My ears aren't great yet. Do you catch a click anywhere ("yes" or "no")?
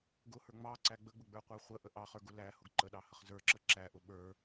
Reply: yes